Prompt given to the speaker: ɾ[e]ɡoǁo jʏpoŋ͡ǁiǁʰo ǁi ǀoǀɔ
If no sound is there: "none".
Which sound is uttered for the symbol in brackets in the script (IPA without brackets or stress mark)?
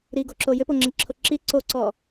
i